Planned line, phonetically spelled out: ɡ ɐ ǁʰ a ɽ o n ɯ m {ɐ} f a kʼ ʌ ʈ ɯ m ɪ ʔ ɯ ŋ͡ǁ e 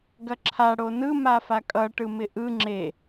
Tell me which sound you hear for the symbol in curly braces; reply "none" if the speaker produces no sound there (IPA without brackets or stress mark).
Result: a